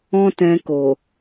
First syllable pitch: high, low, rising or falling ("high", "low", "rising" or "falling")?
high